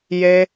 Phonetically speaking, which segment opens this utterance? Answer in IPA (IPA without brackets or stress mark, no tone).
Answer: j